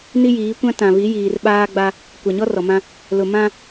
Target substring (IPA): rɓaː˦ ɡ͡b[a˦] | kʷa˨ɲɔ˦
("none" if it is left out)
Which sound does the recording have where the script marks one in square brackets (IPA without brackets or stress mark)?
a˦